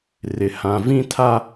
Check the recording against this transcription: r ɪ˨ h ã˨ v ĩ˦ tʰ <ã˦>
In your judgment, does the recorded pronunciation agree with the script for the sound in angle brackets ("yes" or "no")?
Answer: no